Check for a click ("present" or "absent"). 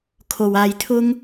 absent